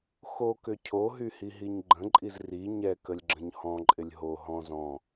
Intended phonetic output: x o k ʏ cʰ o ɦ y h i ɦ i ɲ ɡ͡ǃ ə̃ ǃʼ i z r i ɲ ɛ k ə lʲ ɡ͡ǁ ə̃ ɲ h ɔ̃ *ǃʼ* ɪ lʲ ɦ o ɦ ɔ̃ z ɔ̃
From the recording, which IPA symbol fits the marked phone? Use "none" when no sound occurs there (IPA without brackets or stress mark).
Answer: ǃʼ